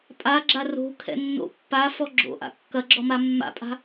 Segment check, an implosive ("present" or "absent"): absent